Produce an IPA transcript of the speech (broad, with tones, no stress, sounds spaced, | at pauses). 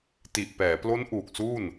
t i˨˩ ʔ p ɛː˩˦ p l o˦˥ n ʔ uː˨˩ k̚ s uː˥˩ n